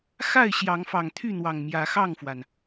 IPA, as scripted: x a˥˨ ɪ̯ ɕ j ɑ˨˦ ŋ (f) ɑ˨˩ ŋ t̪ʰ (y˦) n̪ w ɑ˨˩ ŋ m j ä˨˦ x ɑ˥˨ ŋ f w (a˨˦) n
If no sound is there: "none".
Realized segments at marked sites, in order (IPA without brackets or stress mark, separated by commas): f, y˥˨, a˩